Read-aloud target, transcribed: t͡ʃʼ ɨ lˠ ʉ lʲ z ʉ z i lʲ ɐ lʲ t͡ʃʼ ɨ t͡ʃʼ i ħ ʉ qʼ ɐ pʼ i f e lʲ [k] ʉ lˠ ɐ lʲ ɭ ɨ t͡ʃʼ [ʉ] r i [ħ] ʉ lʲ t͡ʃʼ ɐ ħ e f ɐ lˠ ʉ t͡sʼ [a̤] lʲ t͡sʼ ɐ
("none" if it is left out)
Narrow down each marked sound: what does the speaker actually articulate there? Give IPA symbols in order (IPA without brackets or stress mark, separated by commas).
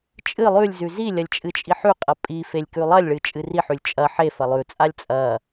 k, ɨ, ħ, a